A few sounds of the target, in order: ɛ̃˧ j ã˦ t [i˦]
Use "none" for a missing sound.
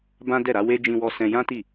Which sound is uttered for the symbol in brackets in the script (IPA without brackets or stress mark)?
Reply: i˦˨